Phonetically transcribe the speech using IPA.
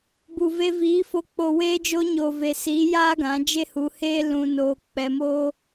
b u˨ v e˧ v iː˨˦ f o˧ k͡p o˨ w eː˧ d͡ʒ o˧ ɲ oː˨ v e˨ s iː˨˦ j aː˦ ɡ ã˨˦ d͡ʒ e˦ h u˧ h eː˦ l ũ˧ n oː˧ k͡p ɛ˧ m oː˦

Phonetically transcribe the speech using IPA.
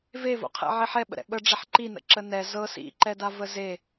v e v o̰ qʰ ɛ̰ ʕ e ħ ɛ ɓ ə̰ ɾ ɛ̰ ɓ ə ɖ͡ʐ ɛ ħ ǃ i n ə̰ ǁ ə n ɛ z ɤ s ḭ ǃ ɛ d a v ə z e

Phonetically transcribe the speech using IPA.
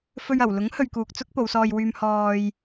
f ɵ˧ ɥ ɐ˨˩ w l ʊ˨˥ ŋ h ɵ˨ ɥ k uː˨ k̚ t͡s ʊ˥ k̚ p o˨˧ w s ɔː˧ j w yː˧ m h ɔː˧ j

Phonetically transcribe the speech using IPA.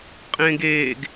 qʼ ẽː ɡ eː ɡ

